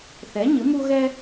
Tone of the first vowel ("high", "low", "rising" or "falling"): rising